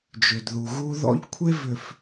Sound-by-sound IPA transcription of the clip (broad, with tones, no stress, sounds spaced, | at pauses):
d͡ʒ ʏ˨ d ð u˨ ɣ u˦ ð ɔ̰˦ ʎ kʷʰ e˦ v ʏ˨ f